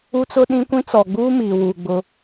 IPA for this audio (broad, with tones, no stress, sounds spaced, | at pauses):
u˦ t͡s ʊ˦ ɗ ĩ˦ kʷ ĩ˦ t͡s ɔ˨ ɡ͡b uː˦ m iː˨ w u˨ ɡ͡b ʊ˦